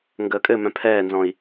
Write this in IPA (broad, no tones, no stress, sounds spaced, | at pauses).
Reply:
ŋ ɡ əː kʼ ɘ m œ̃ pʰ ɛː n z ɔ̃ i̯